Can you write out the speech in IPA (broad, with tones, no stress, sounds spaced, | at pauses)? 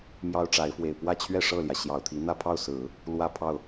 m j ɑ˥ ʊ̯ ʈ͡ʂ a˧˥ ɪ̯ f w e˨˩ ɪ̯ p w ä˥˧ t͡ɕʰ ɥ ɛ˥˧ ʂ ɤ˥˩ l j ä˩ ɕ j ɑ˨˩ ʊ̯ t̪ʰ i˧˥ n̪ ä˥˧ pʰ ɑ˥˩ ʊ̯ s ɹ̩˨˩˦ | l w ä˥˧ pʰ ɑ˥˩ ʊ̯